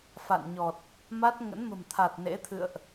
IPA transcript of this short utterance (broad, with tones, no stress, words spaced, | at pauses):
fa̰˧˨nɲɔ˨˩t̚ | ma˦˥t̚ ŋə̰˧˥nmə̤˨˩mt̪ʰa˨˩t̚ nḛ˧˥t̪ʰɨ̰˧˨ə̯ʔ